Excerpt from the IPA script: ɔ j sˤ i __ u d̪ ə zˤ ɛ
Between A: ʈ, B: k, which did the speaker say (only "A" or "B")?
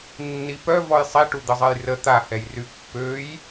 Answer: A